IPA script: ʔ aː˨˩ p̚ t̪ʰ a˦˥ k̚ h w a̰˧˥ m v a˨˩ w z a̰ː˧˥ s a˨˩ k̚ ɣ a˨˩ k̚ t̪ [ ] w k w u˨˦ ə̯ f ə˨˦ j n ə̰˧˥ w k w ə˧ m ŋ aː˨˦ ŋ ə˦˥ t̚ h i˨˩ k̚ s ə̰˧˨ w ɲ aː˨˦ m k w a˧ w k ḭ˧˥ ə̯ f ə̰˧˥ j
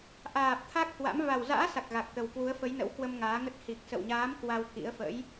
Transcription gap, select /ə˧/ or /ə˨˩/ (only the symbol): ə˨˩